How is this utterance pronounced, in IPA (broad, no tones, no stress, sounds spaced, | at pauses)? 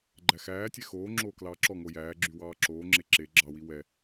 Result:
ɡ͡ǃ æ x æː tʲ ɛ x oː ŋ͡ǁ oː k l ɑː ǁ ɔ ŋ o j æː ɡ͡ǁ y w ɑː ǁ oː ŋ͡ǁ e ǁ e ɡ͡ǁ ɑ w i w ɛ